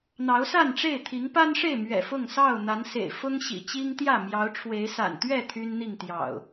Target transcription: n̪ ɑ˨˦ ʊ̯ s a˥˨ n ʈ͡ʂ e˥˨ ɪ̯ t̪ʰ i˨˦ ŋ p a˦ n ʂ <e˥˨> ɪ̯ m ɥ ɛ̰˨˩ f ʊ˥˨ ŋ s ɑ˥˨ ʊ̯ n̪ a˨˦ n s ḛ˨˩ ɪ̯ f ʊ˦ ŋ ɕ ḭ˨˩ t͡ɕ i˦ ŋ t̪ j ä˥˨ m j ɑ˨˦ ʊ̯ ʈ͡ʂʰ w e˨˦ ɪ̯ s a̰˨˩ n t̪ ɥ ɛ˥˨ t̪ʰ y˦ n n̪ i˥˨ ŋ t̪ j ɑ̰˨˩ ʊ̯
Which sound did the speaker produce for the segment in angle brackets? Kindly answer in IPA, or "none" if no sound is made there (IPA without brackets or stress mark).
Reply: e˥˨